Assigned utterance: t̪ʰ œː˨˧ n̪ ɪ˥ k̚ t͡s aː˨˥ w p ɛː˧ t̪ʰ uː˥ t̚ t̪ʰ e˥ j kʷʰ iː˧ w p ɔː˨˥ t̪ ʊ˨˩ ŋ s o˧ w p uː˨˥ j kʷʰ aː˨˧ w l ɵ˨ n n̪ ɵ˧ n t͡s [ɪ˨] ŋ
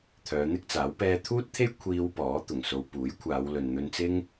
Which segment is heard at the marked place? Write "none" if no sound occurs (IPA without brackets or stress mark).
ɪ˥